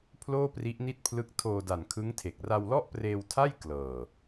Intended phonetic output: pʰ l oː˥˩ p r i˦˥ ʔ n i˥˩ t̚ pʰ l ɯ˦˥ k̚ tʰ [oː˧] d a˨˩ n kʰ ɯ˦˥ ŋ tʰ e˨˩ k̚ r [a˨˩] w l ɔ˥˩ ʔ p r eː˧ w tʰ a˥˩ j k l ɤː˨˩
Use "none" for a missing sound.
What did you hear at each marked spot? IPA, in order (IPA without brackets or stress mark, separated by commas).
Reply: oː˧, a˧